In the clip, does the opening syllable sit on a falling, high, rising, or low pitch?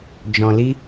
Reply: low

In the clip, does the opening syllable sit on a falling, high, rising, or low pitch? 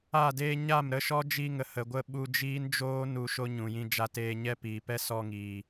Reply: falling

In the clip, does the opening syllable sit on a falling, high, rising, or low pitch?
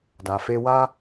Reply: low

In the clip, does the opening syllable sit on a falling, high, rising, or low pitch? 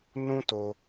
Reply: high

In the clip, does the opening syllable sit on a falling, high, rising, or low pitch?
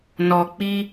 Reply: low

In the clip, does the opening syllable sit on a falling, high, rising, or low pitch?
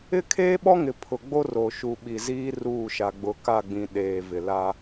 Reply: high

